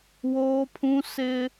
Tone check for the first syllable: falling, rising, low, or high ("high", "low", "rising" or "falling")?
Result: high